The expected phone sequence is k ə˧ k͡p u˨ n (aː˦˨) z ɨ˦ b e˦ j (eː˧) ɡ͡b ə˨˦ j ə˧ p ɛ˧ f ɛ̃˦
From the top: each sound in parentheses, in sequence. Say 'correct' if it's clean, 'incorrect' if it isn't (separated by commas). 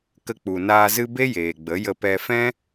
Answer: incorrect, incorrect